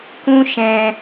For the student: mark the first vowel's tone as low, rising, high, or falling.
high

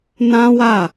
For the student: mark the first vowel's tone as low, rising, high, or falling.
high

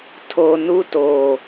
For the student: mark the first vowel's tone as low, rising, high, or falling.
low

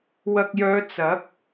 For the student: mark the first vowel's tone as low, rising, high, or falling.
low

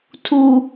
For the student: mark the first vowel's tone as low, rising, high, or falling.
low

